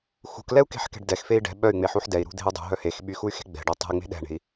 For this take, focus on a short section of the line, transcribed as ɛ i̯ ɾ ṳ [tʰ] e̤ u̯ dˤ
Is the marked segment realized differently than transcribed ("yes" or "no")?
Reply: yes